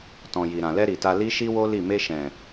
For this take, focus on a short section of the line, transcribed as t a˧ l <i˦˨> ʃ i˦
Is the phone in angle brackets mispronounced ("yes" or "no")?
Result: yes